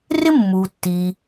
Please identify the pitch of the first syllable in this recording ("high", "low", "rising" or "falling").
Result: high